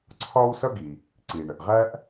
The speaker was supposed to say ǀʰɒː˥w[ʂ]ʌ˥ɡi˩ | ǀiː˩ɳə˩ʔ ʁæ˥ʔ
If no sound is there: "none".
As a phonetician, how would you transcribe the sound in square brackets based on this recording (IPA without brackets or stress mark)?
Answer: s